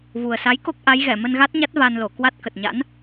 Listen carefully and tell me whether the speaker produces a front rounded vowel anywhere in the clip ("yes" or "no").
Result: no